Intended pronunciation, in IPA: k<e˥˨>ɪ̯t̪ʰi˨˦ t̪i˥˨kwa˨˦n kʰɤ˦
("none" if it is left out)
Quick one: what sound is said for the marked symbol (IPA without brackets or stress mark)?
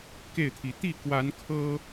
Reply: e˥˨